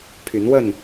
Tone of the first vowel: rising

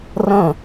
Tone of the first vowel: falling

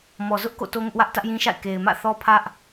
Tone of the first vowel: low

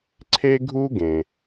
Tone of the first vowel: high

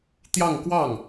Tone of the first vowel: falling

